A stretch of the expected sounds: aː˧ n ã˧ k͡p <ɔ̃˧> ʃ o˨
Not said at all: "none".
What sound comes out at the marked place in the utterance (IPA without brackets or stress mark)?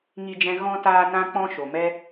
ɔ̃˧